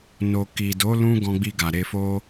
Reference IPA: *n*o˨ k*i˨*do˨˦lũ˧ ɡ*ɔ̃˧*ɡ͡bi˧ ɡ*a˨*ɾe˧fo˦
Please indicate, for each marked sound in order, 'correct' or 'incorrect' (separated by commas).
correct, correct, correct, correct